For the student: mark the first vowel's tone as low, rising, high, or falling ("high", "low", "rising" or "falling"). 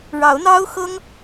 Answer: rising